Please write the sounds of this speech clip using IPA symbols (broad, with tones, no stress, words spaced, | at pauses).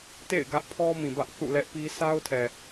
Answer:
tḛ˦˨ɪ̯ɡä˦ʔpʰɔ˦ mĩ˨bä˦ʔ θṵ˦˨ lɛ˦ʔpi˦ sa˦ʊ̯tʰɛ˨